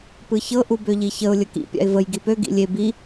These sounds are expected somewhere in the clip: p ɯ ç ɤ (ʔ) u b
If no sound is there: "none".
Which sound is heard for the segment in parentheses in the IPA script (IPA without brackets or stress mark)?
ʔ